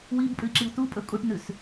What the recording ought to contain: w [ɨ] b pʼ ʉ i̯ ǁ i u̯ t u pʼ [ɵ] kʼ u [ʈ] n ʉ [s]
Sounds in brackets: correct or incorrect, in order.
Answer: incorrect: i, correct, correct, correct

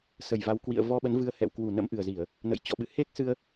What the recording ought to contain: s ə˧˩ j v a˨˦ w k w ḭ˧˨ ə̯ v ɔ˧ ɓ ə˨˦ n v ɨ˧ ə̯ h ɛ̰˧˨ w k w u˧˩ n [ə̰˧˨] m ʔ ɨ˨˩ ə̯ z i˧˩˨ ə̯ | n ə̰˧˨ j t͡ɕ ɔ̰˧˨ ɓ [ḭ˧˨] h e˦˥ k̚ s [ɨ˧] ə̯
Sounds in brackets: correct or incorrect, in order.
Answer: incorrect: ə̰˧˥, incorrect: ɨ̰˧˨, correct

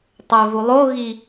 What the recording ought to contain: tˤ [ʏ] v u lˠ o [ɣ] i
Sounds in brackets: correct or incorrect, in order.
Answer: incorrect: ɛ, correct

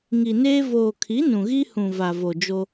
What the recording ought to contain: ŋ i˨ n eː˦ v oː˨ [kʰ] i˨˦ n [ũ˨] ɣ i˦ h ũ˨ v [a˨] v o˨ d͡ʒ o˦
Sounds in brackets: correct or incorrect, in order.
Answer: correct, correct, correct

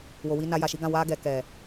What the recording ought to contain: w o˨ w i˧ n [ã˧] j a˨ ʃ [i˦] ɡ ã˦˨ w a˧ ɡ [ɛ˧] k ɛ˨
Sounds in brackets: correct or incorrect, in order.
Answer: incorrect: a˧, incorrect: i˨˦, incorrect: ɛ˨

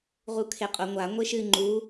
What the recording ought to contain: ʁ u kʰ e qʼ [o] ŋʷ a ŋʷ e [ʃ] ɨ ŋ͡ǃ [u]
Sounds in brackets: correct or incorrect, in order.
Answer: correct, correct, correct

